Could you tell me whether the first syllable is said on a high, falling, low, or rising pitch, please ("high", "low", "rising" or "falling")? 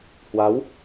rising